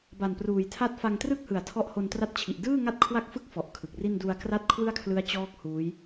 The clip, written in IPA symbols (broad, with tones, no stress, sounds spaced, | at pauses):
b a˨˩ n p r uː˨˩ j tʰ a˥˩ t̚ f a˧ ŋ t r ɯ˥˩ k̚ h ɯ˨˩ a̯ tʰ ɔ˦˥ ʔ h o˧ n t r a˦˥ t̚ t͡ɕʰ i˨˩ ʔ d ɯː˥˩ ŋ a˥˩ t̚ kʰ w a˥˩ k̚ f ɯ˥˩ k̚ f ɔ˨˩ ʔ kʰ ɯ˨˩ k̚ r i˥˩ n d u˧ a̯ k r a˥˩ t̚ kʰ w ɯ˥˩ a̯ kʰ l ɯ˦˥ a̯ t͡ɕ ɔː˦˥ k̚ h uː˦˥ j